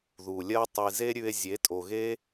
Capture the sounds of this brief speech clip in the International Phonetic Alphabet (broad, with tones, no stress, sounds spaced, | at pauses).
ð u˨ lʲ ɜ˦ tˤ i˨ z e˦ ɾʲ ʉ˧ e̯ zʲ e˨˦ tʼ o˨ ɣ e˦